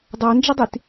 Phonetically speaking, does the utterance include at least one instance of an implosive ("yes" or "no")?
no